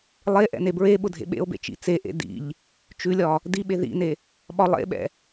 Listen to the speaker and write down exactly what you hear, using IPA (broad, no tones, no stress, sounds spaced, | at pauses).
lˠ e ʔ ɛ̰ n e b ɹ e ɓ ʊ dʱ ḛ ɓ ḛ o̯ b ḛ t͡ʃ ḭ t͡s e ʔ ḛ d ḭ ʎ | t͡ʃ ʉ lʲ ɒ | d i ɓ e ð ḭ n e | ɓ ɒ lˠ ḛ ɓ ɛ̰